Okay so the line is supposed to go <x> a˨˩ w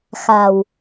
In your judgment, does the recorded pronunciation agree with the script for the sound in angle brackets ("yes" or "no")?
yes